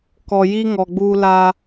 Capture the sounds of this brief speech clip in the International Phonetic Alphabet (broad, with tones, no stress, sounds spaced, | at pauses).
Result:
k ɔ˨ j i˦ ŋ ɔ˨ ɡ͡b u˦ l a˦